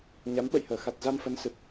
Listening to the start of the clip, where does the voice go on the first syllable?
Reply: rising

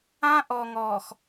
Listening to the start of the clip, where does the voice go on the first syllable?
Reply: high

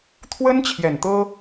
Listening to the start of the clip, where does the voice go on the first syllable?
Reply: high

